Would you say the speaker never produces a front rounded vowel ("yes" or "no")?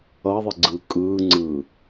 yes